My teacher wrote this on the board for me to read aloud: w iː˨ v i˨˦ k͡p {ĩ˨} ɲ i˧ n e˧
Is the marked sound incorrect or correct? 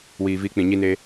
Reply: correct